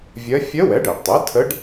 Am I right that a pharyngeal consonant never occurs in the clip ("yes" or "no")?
yes